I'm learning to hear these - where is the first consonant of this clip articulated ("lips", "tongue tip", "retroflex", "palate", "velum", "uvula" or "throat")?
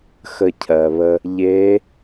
velum